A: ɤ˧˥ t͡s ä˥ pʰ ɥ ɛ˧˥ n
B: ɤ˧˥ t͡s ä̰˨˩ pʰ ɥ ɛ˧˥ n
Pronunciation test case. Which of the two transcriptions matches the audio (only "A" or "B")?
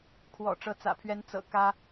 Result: B